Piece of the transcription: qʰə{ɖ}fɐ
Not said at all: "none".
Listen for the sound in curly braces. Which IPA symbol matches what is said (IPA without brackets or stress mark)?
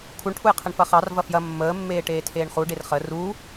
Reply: ɳ